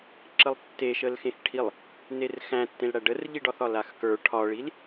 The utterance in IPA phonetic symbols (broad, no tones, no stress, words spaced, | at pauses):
ǁəlˠtːeʃəlxẽx ʈʰilˠ | nerxæ̃tːẽlɽæ ɖərʎiɖɒθɒ laxkə˞ ʈʰɒɭil